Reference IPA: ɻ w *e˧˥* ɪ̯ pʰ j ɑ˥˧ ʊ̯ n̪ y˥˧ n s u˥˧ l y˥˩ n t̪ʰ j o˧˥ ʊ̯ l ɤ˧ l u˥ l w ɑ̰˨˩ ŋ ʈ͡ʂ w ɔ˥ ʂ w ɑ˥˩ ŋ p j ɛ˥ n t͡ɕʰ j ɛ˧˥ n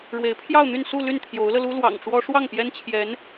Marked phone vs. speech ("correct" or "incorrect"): correct